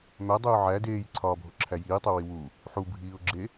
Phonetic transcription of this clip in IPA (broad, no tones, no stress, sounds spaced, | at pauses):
m æ dˤ uː ʕ æ d eː j ǀʰ ɒː bʱ o ǁʰ æ j iː tˤ u w i w u | ħ u bʱ iː ʊ̯ ɡ͡ǁ e